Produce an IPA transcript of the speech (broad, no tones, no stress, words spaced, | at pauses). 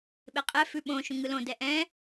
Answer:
ɓeqʼɛ fʉɓõ ʃũŋɯlõ dɛʔɛ̃